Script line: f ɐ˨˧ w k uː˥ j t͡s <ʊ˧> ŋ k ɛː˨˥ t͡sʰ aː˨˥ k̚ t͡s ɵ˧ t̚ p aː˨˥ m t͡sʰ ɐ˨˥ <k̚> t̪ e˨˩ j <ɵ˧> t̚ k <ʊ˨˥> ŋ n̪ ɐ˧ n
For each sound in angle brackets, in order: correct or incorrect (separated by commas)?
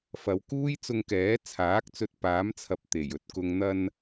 correct, incorrect, correct, incorrect